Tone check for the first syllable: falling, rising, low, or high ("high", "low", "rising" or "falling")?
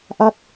falling